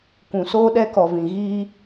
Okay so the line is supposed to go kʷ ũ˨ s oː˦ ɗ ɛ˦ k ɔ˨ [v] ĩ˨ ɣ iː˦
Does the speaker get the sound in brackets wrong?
no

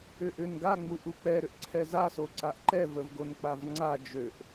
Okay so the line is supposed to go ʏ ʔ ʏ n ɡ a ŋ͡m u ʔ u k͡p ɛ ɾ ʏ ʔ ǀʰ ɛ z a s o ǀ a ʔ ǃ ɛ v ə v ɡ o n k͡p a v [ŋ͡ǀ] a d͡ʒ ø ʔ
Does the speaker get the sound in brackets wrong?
no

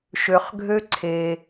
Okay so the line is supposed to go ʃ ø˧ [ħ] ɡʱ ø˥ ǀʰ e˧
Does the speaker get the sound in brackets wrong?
yes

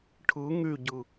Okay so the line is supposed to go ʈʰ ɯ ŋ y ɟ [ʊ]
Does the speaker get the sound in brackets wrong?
yes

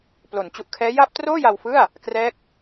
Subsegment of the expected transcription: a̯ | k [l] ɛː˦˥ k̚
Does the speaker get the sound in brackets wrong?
yes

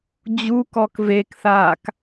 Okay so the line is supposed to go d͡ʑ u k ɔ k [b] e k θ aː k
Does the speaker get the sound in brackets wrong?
yes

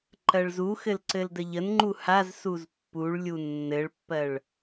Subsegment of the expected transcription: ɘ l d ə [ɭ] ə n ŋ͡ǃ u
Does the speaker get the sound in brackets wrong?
yes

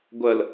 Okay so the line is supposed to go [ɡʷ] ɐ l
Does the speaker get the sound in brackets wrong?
no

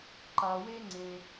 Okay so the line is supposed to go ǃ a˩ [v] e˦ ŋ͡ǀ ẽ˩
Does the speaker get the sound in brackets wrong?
yes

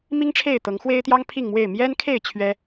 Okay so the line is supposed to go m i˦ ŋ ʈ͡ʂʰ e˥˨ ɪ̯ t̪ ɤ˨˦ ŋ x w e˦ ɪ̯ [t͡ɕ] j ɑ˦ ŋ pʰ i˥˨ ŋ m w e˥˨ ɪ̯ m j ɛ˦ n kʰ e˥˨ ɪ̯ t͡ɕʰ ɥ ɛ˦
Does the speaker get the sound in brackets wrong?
yes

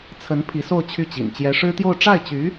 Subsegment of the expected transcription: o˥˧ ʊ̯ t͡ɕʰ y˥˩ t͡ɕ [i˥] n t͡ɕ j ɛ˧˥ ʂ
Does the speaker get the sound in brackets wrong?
yes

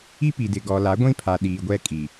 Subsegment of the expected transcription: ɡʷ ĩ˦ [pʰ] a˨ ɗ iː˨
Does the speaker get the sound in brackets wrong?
no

